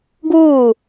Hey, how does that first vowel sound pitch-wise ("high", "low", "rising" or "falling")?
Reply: falling